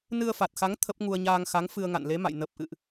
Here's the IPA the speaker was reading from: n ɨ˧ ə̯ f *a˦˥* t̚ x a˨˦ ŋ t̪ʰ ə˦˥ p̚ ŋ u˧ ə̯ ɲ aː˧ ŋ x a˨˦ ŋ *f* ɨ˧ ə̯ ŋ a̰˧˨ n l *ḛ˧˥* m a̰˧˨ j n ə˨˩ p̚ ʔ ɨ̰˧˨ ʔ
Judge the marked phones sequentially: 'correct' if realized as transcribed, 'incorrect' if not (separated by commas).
incorrect, correct, incorrect